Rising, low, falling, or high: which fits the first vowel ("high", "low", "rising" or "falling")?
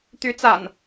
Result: rising